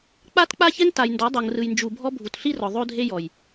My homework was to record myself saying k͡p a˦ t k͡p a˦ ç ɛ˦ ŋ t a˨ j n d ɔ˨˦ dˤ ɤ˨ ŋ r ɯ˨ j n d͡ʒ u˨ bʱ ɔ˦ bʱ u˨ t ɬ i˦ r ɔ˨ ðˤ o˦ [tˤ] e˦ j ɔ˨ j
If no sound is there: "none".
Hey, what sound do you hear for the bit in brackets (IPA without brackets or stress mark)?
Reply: dʱ